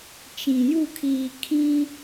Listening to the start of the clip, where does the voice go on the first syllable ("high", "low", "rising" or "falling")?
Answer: low